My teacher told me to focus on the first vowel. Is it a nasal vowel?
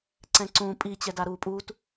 yes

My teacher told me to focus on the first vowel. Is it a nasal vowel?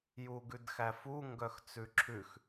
no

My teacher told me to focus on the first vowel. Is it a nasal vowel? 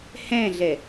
yes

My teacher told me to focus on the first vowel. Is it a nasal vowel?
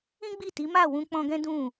yes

